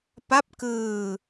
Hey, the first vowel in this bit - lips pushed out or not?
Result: no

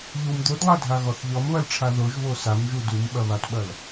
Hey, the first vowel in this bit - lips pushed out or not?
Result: yes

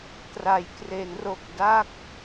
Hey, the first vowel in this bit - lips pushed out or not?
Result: no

